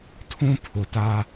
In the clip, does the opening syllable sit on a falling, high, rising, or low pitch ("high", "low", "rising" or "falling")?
high